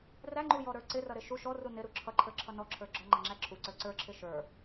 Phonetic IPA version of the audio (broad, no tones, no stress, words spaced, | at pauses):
ræŋ͡ǃujɔɾə˞ ǀɪrʌɾɪ ʃu ʃɔru nɪɾu ǁʰʌǃʰə˞ǁʰʌ nɔǁʰə˞ ɡ͡ǁɔŋ͡ǃʌŋ͡ǁæ ǁʰuǀə˞ ǀə˞ǁʰɪ ʃə˞